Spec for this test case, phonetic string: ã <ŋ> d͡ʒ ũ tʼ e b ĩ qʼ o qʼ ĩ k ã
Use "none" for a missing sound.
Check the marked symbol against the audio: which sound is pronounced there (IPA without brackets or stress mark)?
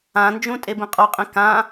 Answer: n